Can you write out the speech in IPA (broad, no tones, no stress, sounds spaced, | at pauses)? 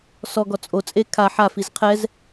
s ɔ ɡ ɔ t͡sʼ o t͡sʼ e kʰ a ħ a f i z qʰ ɛ z